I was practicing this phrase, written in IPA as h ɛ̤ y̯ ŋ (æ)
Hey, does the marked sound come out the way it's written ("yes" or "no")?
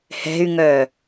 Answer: no